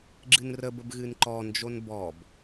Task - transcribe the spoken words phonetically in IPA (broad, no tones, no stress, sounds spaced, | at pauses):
ɡ͡ǁ ɨ n r ə b ə b ɣ ɨ n ǃ ɔ n d͡ʒ o n b ɔ b